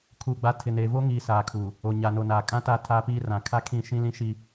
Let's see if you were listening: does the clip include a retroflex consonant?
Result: no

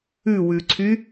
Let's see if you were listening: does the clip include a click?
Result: yes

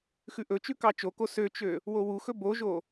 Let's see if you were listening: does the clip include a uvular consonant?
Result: no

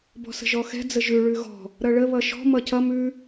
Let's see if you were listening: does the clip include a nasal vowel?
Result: no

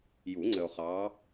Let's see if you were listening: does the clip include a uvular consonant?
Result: yes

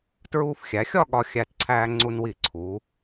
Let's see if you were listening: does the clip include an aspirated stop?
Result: yes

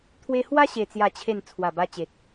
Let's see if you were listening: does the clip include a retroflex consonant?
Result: no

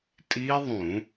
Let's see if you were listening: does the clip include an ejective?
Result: yes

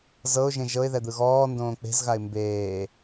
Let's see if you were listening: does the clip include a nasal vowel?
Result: yes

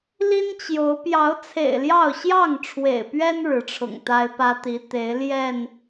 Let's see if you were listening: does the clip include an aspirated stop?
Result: yes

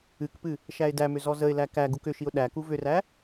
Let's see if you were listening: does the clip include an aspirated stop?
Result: no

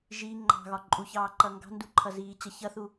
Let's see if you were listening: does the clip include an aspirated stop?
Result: yes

